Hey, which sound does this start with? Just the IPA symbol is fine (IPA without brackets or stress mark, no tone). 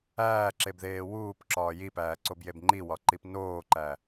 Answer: æː